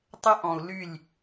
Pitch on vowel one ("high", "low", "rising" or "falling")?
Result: high